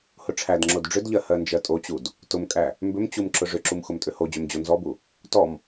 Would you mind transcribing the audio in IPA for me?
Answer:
h ʊ ʈ͡ʂʰ æ d ŋ͡ǁ o d ɖ͡ʐ ʏ d ʎ ɜ h ɜ n d͡ʒ ɜ tʼ o t͡ɕ u d | t ʊ m kʼ æ | m b ʏ m t͡ɕ u m ǁ ʊ ʐ ʏ ǁ u m x ʊ m tʼ ʏ h o d͡ʑ ʏ m d͡ʑ o n z ɔ b u | t ɔ m

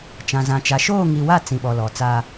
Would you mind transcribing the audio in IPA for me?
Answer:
t͡ʃ ã˨ z ã˨ t͡ʃ a˨˦ ʃ oː˦˨ ŋ i˨ w a˦˨ t͡s ĩ˨ ɓ ɔ˨ l ɔ˨ t͡s a˦

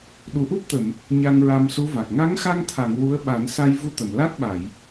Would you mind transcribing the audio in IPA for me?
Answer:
ɗ u˨˩ ʔ u˦˥ p̚ t̪ ə˨˩˨ m | ɲ a˧ ŋ ɹ a˧ m s u˧˥ v a˨˩ k̚ ŋ a˧˥ ŋ x a˧ ŋ t̪ʰ a˨˩˨ ŋ w u˧˥ ə̯ ɓ a˨˩˦ n s a˧ j v u˧ t̪ ə˨˩˨ m l a˦˥ t̚ ɓ a˨˩˨ j

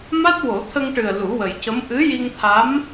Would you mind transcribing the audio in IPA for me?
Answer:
m a˦˥ t̚ w o˨˩˦ t̪ʰ ə˧ ŋ ʈ ɨ˨˩ ə̯ l u˨˩˦ w ə˨˩ j c ə˧˥ m ʔ ɨ˧˥ j i˧ ŋ t̪ʰ a˧˥ m

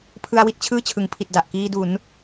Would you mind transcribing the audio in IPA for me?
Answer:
pʰ ɯ˧ a̯ w i˥˩ t̚ t͡ɕʰ ɯː˥˩ t͡ɕʰ ɯ˩˦ ŋ pʰ i˨˩ t̚ d a˨˩ ʔ k iː˧ d u˩˦ n

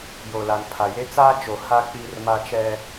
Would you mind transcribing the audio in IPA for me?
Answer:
j o˨ l a˨ n pʰ a˨ j e˦ t͡s aː˦ t͡ʃ o˨ h a˦ k͡p iː˦ r m a˦ t͡ʃ ɛ˦

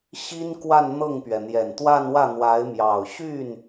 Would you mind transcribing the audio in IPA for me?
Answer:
ɕ i˥ n k w a˥˧ n n̪ ɤ˥˩ ŋ p ɥ ɛ˩ n̪ j ɛ˨˩ n t̪ w a˥˧ n w ä˥˩ n̪ w a˧˥ ɪ̯ m j ɑ˨˩ ʊ̯ ɕ y˥˩ n

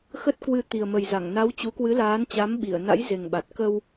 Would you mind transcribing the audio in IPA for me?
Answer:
x ə˦˥ t̚ k w ɨ˧ t̪ i˨˩ ə̯ m ə˨˩ j z a˧˩ ŋ n a˨˦ w t͡ɕ u˨˦ k w ɨ˨˦ l aː˨˦ n t͡ɕ a˨˦ m ɓ i˧˩ ə̯ n a̰˧˥ j z e˨˩ ŋ ɓ a˨˩ t̚ k ə˧ w

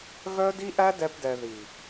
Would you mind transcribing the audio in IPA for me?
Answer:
ɣ œ˦ d i˦ ʔ æ˦ d ɛ˧ p d ɛ˨ ð i˨

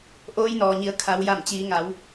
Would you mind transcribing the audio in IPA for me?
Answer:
ʔ oː˧˥ j n ɔː˩ ɲ i˩˧ ə̯ kʰ a˩˧ w j a˧˩ m t͡ɕ iː˩˧ ŋ a˩˧ w

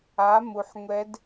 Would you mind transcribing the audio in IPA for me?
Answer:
a˩˧ m u˩ ħ ŋʷ ɛ˧˥ d

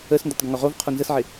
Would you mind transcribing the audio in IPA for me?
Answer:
ə s n d o tˤ ɡ ə ŋ o ʁ o v qʰ o n z ə s ʕ ɪ

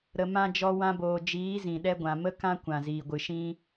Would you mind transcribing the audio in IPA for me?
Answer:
ɾ ə˨ m ã˧ d͡ʒ ɔ˧ w ã˧ b oː˨ d͡ʒ iː˨˦ z ĩ˨ ɗ ɛ˦ ɡʷ ã˨ m ə˦ k ã˦ kʷ ã˨ z iː˨ ɡʷ ɨ˨ ʃ ĩ˦

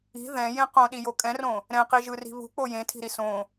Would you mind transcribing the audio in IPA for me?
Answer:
i̤ ð ɛ̃ j ẽ q õ ɗ i j o kʼ ɛ̃ r õ | ɾ ɛ̃ q i ʒ ɯ r i̤ β ṳ k͡p o j ẽ tʰ i̤ ɾ i s õ

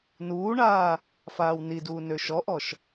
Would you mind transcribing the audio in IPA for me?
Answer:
n uː ɳ aː | f aː w n i d uː n ø ʃ ɔ ʔ ɔ ʃ

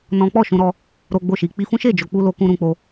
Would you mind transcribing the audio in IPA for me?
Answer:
n ɔ̃˦ k͡p ɔ˦˨ ʃ ũ˧ ɾ ɔ˧ | ɾ o˦ ɡ͡b o˦˨ ʃ i˧ k͡p i˧ f ũ˦ ʃ e˦˨ d͡ʒ o˧ k͡p u˦ l o˦ k ũ˦ ɾ ũ˧ k͡p o˧

